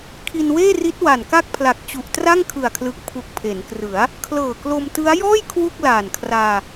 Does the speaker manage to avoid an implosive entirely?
yes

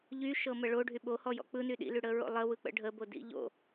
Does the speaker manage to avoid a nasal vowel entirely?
yes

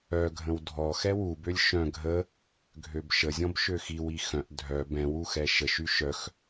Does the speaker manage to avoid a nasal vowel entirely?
no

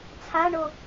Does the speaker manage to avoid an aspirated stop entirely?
no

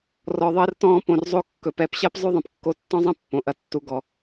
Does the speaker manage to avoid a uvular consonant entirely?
yes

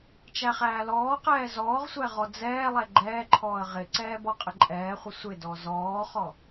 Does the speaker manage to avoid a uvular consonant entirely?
no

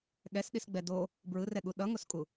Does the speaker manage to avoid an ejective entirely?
no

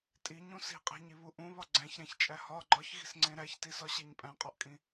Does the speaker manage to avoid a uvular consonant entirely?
no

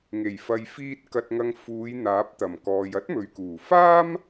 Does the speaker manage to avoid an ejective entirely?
yes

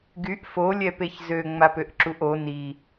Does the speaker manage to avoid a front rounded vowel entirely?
no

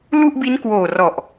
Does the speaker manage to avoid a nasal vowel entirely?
yes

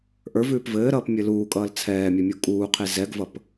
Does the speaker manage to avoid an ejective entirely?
no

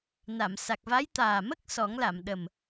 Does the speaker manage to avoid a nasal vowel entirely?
yes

